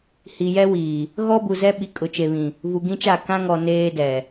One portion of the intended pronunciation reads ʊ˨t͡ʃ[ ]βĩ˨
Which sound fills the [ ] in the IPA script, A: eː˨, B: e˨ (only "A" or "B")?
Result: B